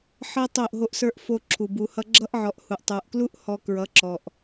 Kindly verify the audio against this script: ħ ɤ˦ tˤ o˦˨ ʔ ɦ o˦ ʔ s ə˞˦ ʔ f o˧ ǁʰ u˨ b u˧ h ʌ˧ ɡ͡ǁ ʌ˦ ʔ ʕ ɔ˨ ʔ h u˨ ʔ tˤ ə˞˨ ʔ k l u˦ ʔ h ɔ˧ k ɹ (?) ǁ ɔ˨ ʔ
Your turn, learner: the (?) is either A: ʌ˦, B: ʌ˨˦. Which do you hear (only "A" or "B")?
B